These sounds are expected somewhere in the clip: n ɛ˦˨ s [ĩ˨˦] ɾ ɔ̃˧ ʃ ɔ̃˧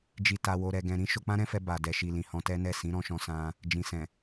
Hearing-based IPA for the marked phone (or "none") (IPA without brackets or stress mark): ĩ˨˦